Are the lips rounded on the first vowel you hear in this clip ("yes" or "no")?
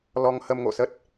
yes